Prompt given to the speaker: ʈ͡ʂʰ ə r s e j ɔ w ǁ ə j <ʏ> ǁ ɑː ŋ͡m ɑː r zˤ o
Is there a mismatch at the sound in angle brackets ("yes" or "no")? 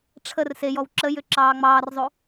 no